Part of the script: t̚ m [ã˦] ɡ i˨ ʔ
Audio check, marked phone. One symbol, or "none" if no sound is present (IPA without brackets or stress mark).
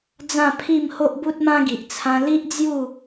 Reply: ã˦